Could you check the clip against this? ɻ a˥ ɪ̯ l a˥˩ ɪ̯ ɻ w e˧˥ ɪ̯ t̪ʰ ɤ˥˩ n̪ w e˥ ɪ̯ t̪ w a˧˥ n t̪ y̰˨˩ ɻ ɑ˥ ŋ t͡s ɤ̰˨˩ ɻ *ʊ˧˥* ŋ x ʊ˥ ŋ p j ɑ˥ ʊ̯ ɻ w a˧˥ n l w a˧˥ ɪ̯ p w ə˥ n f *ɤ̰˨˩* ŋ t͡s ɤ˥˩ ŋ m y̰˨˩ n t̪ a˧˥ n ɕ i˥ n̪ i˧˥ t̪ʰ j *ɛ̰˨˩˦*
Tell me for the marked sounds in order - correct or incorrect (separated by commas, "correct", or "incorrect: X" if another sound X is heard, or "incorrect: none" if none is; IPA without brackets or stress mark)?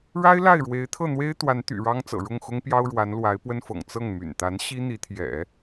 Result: incorrect: ʊ˥˩, correct, correct